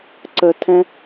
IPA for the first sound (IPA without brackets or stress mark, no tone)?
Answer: ǀ